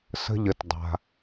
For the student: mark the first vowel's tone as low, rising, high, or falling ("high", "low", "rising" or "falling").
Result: low